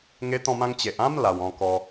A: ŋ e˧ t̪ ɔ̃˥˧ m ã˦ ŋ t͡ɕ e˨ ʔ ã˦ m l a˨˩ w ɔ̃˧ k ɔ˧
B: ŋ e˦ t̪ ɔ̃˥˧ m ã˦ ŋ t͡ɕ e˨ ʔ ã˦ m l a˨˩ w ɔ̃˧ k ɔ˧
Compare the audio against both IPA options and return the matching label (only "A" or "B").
B